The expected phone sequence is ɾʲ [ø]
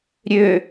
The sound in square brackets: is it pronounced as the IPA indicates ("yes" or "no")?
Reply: yes